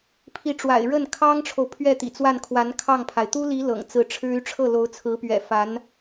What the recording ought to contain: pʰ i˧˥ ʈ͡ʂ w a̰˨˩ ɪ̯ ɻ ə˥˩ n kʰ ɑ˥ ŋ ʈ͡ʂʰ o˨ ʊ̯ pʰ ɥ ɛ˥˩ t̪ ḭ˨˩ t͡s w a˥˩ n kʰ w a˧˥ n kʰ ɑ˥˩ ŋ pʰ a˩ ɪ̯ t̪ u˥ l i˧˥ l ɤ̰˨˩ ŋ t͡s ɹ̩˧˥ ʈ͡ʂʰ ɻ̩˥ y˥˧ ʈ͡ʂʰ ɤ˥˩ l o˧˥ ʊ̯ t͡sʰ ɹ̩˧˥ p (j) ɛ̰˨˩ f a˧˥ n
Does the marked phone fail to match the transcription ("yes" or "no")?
yes